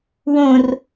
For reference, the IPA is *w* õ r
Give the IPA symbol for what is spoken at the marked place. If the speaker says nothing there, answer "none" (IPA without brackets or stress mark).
w